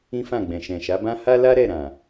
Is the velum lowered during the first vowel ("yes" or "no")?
yes